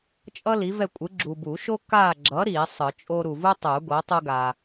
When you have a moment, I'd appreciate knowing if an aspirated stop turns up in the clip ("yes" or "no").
no